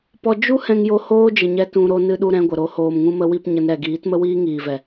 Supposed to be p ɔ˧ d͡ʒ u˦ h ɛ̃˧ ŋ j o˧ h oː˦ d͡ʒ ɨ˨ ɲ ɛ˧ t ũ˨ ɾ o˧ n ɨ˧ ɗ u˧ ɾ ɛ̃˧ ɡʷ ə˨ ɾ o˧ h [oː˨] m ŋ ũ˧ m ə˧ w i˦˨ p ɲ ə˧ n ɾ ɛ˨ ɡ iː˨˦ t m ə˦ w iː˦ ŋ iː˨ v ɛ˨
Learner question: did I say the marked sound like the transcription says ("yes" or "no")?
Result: yes